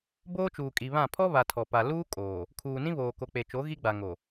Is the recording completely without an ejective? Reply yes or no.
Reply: no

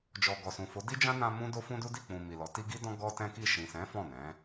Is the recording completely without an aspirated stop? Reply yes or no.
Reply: yes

